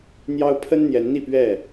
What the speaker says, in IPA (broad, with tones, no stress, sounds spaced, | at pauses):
n̪ j ɑ˦ ʊ̯ pʰ ə˦ n n̪ j ɛ˨˦ n n̪ i˥˨ p ɥ ɛ˥˨